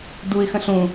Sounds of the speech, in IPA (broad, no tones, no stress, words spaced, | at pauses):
duɪ̯xə̃ ɬũ